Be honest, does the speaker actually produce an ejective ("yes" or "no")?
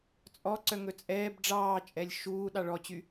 yes